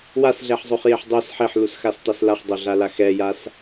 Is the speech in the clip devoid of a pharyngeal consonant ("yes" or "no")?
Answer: no